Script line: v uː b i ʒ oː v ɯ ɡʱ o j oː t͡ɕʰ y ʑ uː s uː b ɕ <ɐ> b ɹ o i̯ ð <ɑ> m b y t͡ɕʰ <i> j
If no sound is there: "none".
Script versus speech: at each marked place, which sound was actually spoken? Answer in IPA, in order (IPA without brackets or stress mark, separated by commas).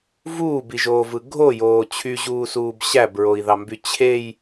æ, ɑ, e